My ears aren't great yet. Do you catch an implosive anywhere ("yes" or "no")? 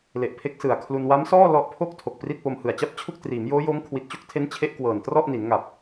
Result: no